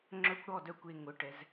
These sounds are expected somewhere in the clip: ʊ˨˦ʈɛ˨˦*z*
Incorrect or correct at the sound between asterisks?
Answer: correct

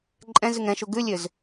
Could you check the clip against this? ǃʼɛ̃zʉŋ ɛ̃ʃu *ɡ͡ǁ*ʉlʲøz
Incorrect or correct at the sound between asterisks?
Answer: incorrect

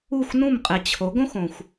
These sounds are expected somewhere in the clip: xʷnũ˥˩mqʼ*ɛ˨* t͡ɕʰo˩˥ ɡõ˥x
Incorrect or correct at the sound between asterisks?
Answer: correct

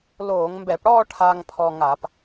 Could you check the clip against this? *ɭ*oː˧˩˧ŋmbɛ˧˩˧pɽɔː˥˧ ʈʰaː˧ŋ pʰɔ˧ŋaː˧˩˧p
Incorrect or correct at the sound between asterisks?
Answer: incorrect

